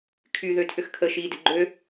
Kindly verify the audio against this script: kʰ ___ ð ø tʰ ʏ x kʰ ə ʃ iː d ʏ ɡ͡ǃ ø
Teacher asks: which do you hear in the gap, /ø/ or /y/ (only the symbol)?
y